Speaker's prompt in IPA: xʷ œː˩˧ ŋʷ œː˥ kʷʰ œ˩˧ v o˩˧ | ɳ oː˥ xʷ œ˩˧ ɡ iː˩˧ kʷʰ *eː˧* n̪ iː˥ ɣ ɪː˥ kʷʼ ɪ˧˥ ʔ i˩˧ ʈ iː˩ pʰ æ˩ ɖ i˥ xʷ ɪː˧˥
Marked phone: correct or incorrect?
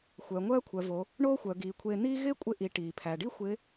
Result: correct